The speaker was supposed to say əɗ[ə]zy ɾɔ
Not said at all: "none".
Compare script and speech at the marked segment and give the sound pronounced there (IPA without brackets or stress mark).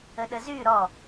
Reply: ə